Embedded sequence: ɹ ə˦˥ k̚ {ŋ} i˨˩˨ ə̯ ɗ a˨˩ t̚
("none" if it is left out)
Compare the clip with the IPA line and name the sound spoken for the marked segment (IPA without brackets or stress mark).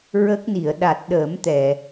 n